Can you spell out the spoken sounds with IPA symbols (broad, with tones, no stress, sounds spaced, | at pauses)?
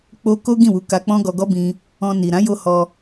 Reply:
k͡p o˧ k o˦ ɡ ĩ˦˨ w u˨˦ k a˧ k͡p ɔ̃˦ ɡ ɔ˧ ɡ ɔ˦ b ĩ˧ | ɔ̃˧ n i˨ ɾ ã˨˦ j o˦ h ɔ˧